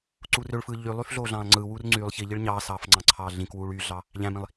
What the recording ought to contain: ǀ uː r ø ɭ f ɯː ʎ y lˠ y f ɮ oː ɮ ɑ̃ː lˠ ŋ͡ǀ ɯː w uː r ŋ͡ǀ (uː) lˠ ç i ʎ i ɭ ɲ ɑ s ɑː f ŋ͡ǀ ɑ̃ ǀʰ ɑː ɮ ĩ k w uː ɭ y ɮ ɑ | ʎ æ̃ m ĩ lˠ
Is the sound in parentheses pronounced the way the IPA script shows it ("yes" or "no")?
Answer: no